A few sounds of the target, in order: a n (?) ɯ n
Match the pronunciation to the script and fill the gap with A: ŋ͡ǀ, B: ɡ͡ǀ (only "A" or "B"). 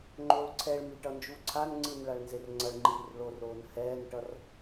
A